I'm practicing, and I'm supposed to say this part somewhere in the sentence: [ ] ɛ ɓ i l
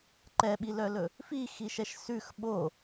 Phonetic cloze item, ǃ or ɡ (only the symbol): ǃ